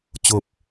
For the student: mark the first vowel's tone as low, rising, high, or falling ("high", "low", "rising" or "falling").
low